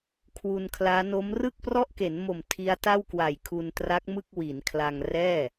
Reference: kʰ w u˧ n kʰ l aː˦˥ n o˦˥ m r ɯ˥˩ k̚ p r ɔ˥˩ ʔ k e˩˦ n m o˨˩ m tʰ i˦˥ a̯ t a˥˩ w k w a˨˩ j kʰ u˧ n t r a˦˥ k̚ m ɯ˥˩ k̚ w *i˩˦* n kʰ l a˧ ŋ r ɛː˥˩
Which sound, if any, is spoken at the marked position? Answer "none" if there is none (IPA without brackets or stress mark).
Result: i˩˦